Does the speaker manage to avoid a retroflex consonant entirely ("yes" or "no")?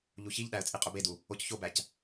yes